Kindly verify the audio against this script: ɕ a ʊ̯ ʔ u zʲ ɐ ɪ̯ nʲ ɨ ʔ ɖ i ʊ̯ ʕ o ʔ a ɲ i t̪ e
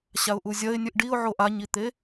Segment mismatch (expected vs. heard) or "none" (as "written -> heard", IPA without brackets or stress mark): none